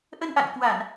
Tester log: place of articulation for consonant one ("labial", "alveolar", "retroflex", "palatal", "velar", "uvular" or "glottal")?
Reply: glottal